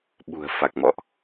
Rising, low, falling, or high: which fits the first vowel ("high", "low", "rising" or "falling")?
low